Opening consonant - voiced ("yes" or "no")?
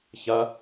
no